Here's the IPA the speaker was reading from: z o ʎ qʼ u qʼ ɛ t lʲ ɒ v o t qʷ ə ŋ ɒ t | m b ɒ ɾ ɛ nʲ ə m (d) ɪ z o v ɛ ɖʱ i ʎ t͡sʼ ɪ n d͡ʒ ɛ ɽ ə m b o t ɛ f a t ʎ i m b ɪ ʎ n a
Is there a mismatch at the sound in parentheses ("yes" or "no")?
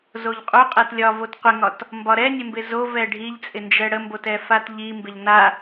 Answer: yes